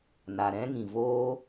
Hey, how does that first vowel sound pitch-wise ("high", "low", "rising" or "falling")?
low